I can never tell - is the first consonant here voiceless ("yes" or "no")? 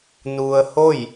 no